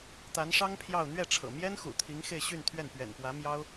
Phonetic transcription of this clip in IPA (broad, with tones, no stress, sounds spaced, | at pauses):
t̪ a˧˥ n ʂ ɑ˥ ŋ pʰ j ɑ˥˧ ʊ̯ n̪ ɥ ɛ˥˩ ʈ͡ʂʰ ɤ̰˨˩ m j ɛ˥ n x ṵ˨˩ t̪ʰ i˧˥ ŋ x e˥˧ ɪ̯ ɕ y˥˧ n t̪ʰ ɥ ɛ˥˩ n p ɥ ɛ̰˨˩ n p w ä˧˥ m j ɑ˥ ʊ̯